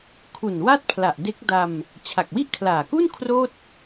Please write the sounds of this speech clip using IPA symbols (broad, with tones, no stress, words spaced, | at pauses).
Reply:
kʰu˨˩n wa˥˩t̚pʰla˨˩ʔde˦˥k̚da˧m | t͡ɕʰa˨˩k̚wi˥˩ʔkʰlaː˨˩ku˥˩n kʰroː˥˩t̚